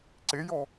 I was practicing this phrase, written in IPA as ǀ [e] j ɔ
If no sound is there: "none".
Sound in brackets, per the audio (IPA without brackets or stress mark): e